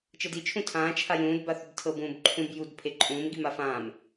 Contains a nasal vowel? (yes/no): yes